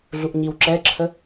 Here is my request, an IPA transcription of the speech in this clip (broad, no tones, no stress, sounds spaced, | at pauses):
ɮ u ʔ ɲ i w ǁ ɛ ǁʰ ə